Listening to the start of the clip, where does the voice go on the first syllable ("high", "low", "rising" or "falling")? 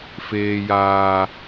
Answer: high